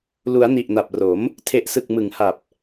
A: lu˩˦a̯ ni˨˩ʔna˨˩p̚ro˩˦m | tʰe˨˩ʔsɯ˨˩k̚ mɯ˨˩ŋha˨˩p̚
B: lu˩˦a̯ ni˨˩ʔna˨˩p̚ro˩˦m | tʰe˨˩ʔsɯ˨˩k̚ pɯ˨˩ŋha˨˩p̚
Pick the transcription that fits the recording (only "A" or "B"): A